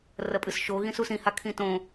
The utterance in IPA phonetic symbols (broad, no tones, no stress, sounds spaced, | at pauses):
r ɐ pʼ ɨ s ʃ o ɣ ĩ s u s ĩ h a kʰ ĩ t õ